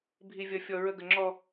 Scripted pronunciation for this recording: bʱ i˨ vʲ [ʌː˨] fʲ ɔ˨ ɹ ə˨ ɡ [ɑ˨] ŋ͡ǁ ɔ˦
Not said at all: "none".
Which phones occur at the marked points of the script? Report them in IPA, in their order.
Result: ʌ˨, ə˨

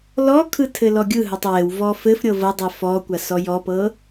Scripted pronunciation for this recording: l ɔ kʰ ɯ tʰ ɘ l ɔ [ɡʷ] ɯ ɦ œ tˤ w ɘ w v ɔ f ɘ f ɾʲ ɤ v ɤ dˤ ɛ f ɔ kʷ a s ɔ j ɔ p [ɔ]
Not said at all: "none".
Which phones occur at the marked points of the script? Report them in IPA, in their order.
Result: ɡʲ, ɤ

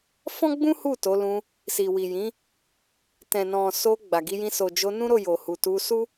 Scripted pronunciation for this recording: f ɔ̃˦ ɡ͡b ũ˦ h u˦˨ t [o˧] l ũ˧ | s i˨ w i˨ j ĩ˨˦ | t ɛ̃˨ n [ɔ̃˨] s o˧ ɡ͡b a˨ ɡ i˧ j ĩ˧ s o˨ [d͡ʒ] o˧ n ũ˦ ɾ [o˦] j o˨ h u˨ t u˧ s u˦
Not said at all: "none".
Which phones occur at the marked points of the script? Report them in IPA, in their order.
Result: o˨˦, ɔ̃˨, d͡ʒ, o˦˨

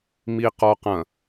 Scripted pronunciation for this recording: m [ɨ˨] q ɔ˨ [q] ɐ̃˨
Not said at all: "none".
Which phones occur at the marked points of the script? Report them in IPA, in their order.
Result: i˨, q

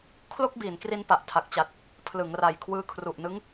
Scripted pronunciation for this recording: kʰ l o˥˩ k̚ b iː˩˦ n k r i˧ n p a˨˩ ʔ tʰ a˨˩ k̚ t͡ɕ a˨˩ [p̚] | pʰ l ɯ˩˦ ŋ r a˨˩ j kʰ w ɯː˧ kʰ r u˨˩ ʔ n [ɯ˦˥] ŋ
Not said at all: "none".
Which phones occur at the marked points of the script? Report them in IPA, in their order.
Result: t̚, ɯ˦˥

